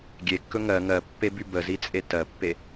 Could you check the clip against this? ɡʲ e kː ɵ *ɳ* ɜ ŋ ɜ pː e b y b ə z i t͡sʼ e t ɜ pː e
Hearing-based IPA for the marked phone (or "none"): ŋ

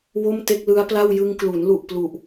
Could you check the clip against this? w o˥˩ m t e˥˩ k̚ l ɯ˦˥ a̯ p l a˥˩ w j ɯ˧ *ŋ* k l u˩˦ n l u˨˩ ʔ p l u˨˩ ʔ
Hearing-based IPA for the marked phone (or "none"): ŋ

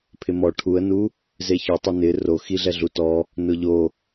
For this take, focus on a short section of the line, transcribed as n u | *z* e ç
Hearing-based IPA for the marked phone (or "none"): z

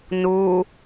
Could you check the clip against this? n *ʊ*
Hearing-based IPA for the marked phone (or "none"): u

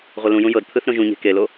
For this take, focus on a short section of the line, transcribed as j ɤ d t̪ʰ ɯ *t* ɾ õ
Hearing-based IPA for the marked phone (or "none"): θ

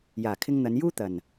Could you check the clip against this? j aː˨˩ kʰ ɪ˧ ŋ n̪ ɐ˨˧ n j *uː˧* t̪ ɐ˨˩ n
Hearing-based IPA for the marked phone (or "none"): uː˥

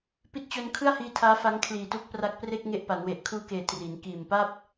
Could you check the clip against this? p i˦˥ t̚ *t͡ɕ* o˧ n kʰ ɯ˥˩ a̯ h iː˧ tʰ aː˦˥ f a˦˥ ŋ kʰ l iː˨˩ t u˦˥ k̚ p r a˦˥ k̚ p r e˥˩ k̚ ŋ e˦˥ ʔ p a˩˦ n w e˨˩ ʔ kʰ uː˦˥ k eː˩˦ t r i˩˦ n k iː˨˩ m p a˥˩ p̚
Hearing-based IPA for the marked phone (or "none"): t͡ɕ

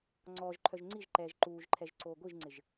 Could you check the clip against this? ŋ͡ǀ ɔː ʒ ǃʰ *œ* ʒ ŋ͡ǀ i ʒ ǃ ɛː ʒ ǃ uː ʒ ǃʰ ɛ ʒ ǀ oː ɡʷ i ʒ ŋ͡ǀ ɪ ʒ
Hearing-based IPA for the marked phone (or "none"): œ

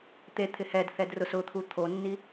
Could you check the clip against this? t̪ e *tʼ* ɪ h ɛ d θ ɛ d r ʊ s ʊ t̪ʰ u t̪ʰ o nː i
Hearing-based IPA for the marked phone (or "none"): t̪ʰ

